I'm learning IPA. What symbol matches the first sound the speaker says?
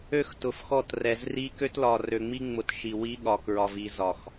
ø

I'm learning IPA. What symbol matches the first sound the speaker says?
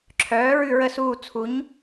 ǁʰ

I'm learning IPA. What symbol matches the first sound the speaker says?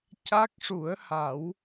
c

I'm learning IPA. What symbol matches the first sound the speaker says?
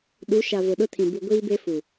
ɗ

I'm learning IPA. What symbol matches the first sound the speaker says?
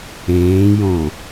ẽː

